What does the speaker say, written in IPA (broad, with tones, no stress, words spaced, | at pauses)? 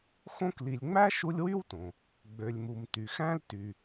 xõ˦kli˨lʲŋ͡mæ˥ ʃu˦lʲwy˥wtõ˩ | ɡ͡bø˨lʲmu˨m ty˩xæ̃˥l ty˨